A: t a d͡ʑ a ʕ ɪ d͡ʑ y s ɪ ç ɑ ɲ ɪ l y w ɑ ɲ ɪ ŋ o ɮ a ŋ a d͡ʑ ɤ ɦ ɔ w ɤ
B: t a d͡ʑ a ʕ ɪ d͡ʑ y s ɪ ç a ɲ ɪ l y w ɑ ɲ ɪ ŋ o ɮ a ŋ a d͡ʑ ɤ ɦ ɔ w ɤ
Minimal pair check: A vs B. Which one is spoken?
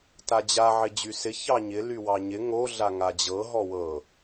A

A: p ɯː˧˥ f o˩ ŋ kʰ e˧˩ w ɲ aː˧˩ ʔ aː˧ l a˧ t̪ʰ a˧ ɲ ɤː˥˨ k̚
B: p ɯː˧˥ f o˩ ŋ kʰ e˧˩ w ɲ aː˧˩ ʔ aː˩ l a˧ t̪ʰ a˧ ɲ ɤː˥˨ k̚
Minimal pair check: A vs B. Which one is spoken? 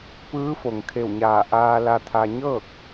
A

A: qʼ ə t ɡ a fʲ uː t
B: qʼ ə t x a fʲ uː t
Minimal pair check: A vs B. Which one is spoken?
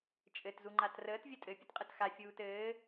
B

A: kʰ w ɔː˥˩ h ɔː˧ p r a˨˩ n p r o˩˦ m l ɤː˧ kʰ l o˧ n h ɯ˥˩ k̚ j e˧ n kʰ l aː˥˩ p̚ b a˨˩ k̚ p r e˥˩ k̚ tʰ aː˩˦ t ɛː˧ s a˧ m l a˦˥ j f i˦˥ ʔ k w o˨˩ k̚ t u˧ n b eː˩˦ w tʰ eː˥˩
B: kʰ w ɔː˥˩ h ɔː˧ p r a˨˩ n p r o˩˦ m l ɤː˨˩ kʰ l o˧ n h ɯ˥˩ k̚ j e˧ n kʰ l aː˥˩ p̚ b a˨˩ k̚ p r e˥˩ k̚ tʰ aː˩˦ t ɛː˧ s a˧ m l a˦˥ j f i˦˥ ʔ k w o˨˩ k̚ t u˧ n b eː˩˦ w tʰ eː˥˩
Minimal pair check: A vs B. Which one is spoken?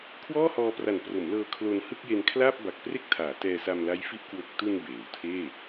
A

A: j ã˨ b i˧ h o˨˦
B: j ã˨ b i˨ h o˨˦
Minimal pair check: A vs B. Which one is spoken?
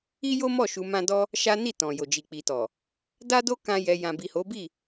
B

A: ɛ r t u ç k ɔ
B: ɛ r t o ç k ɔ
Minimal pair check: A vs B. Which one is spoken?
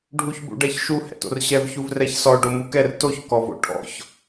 B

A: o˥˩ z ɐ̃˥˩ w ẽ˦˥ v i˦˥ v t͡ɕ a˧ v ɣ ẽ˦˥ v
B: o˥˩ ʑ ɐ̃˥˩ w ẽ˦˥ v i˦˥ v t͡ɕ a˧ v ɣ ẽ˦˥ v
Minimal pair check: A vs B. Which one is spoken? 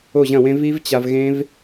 B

